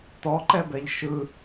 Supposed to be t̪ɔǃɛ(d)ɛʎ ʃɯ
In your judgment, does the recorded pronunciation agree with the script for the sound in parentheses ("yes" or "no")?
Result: no